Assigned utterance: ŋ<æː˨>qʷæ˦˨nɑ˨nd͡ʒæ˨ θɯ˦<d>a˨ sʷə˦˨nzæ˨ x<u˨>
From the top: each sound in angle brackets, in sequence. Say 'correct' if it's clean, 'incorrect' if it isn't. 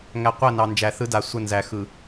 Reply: incorrect: æ˨, correct, incorrect: ɯ˨

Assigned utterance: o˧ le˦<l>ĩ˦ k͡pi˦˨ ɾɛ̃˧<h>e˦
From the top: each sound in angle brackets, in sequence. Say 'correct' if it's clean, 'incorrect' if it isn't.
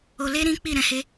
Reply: incorrect: ɾ, correct

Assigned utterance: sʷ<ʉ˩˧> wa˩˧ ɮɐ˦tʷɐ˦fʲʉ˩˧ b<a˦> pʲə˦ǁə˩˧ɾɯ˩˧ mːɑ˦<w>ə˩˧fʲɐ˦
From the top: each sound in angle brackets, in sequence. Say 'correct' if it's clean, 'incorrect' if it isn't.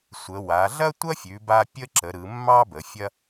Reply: incorrect: ə˩˧, correct, incorrect: b

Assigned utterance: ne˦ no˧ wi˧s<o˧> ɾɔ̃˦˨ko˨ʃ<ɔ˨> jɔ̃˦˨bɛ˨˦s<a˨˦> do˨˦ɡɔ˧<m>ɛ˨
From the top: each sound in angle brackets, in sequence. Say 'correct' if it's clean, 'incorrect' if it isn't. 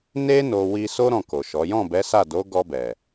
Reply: incorrect: o˦, incorrect: ɔ˨˦, incorrect: a˦˨, incorrect: b

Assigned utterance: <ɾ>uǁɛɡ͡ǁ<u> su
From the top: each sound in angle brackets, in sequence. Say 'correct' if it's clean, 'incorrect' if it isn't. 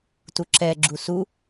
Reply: incorrect: t, correct

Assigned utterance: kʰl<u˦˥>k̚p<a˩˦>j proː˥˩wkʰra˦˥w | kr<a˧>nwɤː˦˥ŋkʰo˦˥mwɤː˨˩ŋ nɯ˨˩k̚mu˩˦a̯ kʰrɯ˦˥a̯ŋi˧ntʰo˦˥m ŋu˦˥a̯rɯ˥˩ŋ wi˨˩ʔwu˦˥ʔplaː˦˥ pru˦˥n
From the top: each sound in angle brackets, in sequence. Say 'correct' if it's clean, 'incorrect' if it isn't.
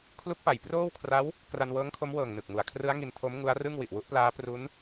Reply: correct, correct, correct

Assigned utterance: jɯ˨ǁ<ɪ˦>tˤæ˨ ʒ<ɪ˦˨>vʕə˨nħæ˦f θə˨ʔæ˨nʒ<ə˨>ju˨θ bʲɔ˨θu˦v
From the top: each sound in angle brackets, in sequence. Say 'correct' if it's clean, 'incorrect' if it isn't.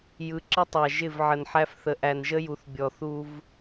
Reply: incorrect: ə˦, correct, incorrect: ə˦

